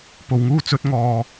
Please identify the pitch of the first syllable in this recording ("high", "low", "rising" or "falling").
low